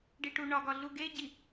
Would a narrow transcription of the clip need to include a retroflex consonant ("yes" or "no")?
yes